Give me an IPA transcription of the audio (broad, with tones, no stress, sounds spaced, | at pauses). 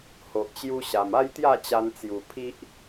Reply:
h o˨ ʔ t͡ɕ j u˧ ɕ a˨˩ m a˦ j t̪ j a˥˧ t͡ɕ a˧ n t͡s j u˨˩ pʰ i˦ ʔ